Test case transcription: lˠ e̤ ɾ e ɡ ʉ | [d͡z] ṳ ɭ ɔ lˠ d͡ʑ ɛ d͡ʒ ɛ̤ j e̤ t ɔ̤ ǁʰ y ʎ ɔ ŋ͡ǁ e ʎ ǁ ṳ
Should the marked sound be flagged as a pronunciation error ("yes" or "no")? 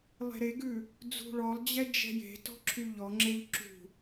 no